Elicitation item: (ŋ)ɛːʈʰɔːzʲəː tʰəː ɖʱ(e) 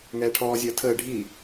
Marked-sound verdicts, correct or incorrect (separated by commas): correct, incorrect